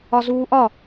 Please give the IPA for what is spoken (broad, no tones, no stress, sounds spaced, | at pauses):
ɒ z uː ʔ ɒ